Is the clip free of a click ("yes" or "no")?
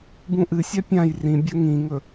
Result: yes